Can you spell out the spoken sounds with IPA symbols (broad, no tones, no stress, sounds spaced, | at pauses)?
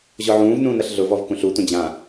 ʑ ɔ ʕ ũː v n ũː n ɐ ɬ ɮ ʊ v ɔ v k ũ ɬ u tʷ ɐ̃ d͡ʑ ã